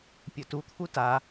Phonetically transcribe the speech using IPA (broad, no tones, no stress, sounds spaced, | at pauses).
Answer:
pʲ ɵ t u t̪ʰ u t a